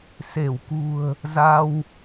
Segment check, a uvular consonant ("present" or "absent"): absent